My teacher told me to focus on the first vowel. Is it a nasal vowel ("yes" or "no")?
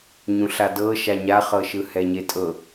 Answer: yes